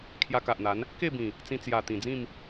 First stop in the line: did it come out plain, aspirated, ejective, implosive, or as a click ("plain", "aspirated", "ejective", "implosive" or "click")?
aspirated